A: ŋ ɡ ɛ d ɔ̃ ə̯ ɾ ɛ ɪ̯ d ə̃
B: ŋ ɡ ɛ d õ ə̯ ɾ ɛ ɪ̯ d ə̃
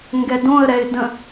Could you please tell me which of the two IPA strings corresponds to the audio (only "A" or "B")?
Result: B